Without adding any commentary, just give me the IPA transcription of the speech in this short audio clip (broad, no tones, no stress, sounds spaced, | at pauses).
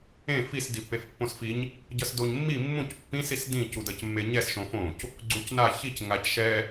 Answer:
ẽ f i s d i pː e f pː õ s f i ɲ | ɟ ʌ s d o ɲ mː i mː ũ c pː ĩ s i s d ĩ c u d ʌ c mː e ɲ ɛ s ʃ õ f õ c | ɡ͡ǀ u c n a ç i c ŋ a c ʃ ɛ